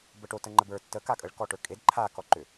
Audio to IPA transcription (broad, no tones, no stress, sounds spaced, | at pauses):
b ə ʈ o t ə ŋ͡ǃ ə b ə˞ tː ə k a kʼ ə ɭ k ɔ ʈ ə˞ kʼ e d ǃʰ a k ɔ ǃ ʏ